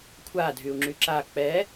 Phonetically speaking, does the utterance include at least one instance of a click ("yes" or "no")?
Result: yes